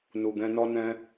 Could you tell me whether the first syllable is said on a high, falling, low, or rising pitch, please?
low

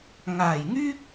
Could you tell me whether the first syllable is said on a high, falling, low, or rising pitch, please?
low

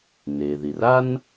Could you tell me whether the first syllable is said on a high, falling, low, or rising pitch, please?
low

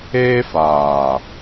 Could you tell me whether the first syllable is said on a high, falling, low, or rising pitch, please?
high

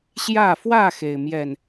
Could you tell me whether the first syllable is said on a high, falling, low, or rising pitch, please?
falling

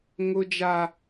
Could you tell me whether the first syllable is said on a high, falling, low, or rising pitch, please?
high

